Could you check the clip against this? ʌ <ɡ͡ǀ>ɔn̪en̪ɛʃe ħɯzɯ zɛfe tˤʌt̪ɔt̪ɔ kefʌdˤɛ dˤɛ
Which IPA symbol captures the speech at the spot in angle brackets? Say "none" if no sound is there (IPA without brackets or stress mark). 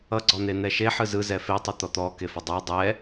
ɡ͡ǀ